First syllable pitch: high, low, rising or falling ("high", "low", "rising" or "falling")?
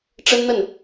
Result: high